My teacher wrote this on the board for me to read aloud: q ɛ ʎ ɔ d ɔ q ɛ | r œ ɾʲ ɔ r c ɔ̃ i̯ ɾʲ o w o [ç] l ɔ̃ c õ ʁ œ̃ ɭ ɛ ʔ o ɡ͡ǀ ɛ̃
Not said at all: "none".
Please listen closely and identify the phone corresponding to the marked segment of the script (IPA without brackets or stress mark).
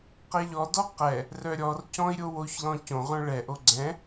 ç